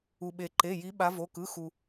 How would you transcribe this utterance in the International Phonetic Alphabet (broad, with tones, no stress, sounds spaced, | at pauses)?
u˩ ɓ e˩ ǃ e˩˧˩ j i˨˦ ɓ a˨˦ v o˩˧˩ k ɯ˩˧˩ x u˩